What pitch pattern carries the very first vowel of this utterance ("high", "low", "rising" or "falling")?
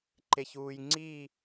low